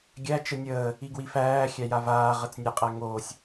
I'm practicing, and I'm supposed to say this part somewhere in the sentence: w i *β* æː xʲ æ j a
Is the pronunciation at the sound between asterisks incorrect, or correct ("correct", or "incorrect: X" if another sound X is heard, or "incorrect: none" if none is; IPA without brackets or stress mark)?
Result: incorrect: f